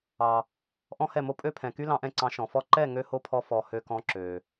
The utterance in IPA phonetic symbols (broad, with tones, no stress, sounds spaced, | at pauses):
ɑ˨ | ʔ ɔ̃˦ h ɛ˦˨ m o˦ pʼ ø˦ pʰ ɛ̃˨ k y˦ l ɑ̃˧ ʔ ɛ̃˧ ǀ ɑ̃˨˦ ʃ ɔ̃˨ f ɔ˦ ǃ ɛ˦˨ ŋ ø˦ h o˦ pʰ ɔ˧ f ɔ˨ h ø˧ k ɔ̃˧ ǁ ø˨